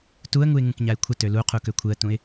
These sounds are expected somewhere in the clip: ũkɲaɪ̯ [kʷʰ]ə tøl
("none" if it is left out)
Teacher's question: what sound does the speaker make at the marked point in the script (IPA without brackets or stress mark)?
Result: kʷʰ